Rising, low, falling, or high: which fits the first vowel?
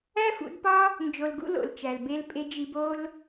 high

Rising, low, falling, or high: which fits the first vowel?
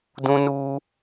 high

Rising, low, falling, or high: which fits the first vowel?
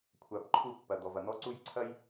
low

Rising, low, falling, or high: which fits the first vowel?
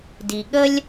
low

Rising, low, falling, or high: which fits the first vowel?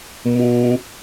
high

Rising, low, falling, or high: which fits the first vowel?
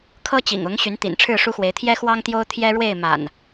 high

